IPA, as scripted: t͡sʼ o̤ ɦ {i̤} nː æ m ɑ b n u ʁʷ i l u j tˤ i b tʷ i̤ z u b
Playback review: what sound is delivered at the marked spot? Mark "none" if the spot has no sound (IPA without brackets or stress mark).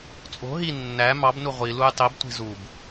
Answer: i